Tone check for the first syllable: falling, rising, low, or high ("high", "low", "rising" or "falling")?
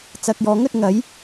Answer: low